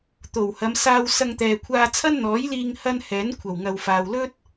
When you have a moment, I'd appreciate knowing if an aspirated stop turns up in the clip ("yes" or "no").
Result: yes